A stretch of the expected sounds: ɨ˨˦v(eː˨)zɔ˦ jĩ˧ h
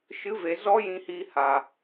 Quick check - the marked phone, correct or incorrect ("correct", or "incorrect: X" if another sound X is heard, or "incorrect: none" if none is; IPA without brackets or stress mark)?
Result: incorrect: e˨